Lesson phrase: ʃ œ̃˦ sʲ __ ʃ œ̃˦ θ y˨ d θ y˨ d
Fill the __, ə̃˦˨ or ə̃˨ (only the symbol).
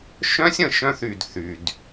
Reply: ə̃˨